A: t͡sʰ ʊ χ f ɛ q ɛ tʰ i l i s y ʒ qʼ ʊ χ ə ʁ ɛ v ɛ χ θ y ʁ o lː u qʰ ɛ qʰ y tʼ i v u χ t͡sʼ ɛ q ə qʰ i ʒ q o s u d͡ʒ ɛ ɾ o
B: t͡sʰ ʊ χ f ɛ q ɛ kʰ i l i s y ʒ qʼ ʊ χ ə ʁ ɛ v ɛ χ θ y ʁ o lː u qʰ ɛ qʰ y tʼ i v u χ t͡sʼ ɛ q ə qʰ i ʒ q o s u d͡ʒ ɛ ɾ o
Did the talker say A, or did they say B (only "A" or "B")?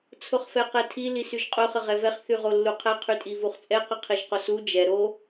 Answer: A